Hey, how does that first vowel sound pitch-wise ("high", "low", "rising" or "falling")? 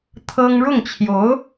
high